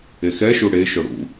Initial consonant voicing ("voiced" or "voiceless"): voiceless